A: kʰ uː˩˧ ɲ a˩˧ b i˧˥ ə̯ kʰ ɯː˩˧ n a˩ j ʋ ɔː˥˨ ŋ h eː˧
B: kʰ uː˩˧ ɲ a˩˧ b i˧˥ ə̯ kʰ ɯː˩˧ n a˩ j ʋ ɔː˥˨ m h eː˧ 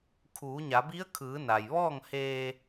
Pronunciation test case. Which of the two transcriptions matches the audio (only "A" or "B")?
A